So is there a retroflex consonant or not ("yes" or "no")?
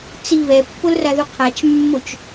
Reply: no